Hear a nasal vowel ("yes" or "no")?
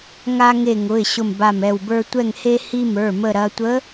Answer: no